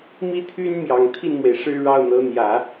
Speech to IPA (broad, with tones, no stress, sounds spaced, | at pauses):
m i˥ t̪ʰ y˥ n m j ɑ˨˩ ŋ t̪ʰ i˥˩ n m w e˩ ɪ̯ ʂ ɻ̩˥˧ ɻ ɑ˥˩ ʊ̯ n̪ ɤ˧˥ n̪ j ä˨˩˦